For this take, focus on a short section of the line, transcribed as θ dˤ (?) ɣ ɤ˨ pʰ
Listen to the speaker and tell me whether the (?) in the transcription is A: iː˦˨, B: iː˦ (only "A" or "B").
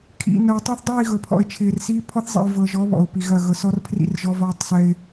A